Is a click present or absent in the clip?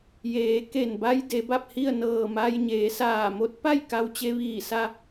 absent